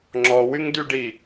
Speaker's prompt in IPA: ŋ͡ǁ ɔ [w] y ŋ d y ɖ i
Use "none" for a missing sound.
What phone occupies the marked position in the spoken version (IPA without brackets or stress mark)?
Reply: w